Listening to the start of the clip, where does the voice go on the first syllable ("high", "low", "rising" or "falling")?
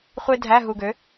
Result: high